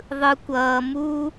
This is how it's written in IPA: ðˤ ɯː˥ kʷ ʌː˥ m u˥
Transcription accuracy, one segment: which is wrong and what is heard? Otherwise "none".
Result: ɯː˥ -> ɯ˥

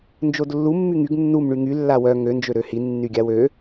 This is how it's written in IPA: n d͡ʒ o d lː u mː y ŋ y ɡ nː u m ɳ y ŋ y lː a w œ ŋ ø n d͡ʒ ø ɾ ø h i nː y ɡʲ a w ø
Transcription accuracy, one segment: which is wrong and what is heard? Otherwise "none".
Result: none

